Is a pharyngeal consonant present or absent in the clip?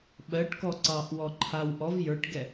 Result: absent